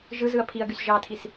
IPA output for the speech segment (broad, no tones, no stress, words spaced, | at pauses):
ʒɯzɯɐ̯ pʰiɐ̯ɡys ʒɑtʰis